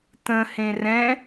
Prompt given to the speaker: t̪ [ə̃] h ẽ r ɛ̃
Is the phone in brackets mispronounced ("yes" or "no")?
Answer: no